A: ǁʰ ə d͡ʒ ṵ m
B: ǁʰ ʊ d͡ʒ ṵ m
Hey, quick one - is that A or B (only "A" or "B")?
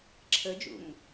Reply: A